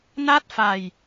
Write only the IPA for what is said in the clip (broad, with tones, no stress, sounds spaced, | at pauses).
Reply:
n a˥˩ t̚ f a˧ j